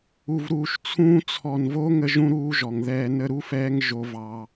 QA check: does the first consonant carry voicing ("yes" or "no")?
yes